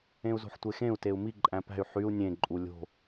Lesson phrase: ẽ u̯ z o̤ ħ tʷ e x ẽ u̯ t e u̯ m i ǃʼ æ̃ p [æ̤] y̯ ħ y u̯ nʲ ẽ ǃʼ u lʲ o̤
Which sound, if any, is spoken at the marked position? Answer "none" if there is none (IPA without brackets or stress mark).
æ̤